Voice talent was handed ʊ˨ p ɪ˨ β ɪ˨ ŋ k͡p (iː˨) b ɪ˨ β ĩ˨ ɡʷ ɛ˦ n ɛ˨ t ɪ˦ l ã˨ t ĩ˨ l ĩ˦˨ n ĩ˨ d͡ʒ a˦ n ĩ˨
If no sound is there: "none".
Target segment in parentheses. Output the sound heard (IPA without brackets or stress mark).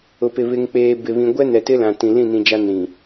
eː˨